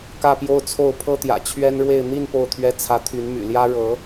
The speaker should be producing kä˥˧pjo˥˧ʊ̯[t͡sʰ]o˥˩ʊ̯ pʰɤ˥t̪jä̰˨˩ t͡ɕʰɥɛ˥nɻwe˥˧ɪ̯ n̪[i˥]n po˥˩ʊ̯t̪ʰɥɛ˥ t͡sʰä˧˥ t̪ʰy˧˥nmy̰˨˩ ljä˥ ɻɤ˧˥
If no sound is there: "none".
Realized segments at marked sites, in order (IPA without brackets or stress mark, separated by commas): t͡sʰ, i˥˧